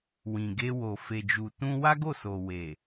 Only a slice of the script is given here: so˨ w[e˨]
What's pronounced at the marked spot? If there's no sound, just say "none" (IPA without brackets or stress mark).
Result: e˨